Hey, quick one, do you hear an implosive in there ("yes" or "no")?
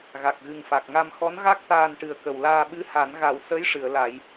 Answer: yes